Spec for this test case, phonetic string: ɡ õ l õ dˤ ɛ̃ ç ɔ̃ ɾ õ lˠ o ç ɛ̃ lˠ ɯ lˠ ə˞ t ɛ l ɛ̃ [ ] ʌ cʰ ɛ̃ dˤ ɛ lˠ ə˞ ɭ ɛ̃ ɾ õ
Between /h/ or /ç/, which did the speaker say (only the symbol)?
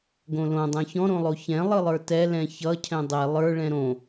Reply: ç